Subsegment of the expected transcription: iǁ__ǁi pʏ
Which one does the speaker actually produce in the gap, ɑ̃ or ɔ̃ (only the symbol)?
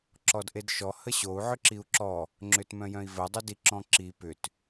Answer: ɔ̃